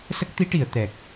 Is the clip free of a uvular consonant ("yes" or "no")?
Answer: yes